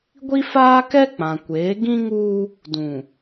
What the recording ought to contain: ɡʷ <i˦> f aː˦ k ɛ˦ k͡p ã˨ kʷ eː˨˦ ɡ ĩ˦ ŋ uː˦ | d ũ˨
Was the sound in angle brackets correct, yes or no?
yes